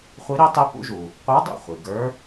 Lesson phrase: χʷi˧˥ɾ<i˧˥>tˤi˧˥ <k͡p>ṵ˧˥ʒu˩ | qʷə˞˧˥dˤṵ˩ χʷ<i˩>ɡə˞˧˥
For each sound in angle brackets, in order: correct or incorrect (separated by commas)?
correct, incorrect, correct